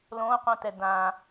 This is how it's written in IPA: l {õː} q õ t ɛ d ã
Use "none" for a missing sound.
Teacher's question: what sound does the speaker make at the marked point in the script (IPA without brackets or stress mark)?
õː